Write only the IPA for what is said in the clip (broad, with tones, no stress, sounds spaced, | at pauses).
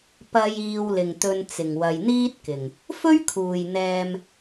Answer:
p ɐ˨ j iː˨ w l ɪ˨˩ ŋ t̪ ɵ˨ n t͡s ɪ˨˩ ŋ w ɐ˨ j n̪ iː˥ t̚ k ɪ˨˩ ŋ | f ɵ˥ ɥ kʰ uː˨˩ j n̪ ɛː˨ m